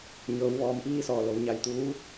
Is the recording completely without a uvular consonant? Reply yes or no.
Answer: yes